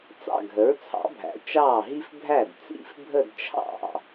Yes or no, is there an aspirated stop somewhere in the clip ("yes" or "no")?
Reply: yes